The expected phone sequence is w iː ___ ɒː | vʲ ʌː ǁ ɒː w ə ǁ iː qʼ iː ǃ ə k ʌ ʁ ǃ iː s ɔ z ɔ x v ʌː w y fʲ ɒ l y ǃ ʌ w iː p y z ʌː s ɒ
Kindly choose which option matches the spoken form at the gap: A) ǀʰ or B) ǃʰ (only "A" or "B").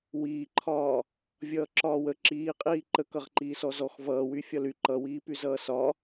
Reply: B